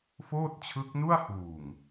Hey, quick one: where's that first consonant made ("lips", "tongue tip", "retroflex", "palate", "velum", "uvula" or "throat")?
lips